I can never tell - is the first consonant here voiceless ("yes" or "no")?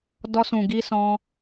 no